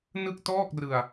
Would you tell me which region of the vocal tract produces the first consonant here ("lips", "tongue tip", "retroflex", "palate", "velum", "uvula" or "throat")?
tongue tip